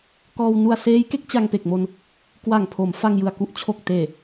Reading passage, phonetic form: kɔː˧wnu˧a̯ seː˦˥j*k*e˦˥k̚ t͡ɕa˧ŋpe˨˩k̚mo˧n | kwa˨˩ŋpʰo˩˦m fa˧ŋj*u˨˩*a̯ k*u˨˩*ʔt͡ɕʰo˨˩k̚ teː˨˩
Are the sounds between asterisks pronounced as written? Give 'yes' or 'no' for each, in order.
yes, no, no

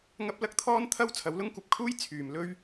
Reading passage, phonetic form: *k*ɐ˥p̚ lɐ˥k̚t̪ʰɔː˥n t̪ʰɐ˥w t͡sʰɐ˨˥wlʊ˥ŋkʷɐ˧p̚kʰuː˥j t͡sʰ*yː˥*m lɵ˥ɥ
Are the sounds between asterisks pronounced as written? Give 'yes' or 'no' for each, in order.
no, no

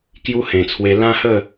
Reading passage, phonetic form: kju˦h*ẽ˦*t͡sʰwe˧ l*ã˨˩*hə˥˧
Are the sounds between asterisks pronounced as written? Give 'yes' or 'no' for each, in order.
no, no

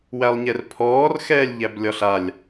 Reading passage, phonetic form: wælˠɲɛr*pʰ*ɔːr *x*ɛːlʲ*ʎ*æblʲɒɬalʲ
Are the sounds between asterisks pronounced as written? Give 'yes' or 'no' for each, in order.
yes, yes, yes

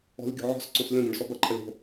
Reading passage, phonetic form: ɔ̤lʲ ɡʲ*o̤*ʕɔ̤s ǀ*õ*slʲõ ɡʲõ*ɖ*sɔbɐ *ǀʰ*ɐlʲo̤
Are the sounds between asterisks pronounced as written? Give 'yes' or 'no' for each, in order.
yes, yes, yes, no

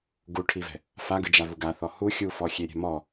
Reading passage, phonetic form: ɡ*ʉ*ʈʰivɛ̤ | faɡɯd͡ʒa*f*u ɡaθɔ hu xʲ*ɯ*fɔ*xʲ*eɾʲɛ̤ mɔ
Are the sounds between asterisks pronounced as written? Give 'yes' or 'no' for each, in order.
no, no, no, yes

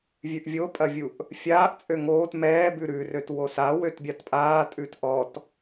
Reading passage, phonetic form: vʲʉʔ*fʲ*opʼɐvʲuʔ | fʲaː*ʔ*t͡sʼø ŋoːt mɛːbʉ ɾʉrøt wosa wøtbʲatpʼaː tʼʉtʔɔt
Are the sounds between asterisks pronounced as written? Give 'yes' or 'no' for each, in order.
no, yes

